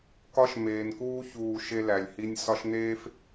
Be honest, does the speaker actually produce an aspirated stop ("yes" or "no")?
no